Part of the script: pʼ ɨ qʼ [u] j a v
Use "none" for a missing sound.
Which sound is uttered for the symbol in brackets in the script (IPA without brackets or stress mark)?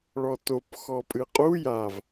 u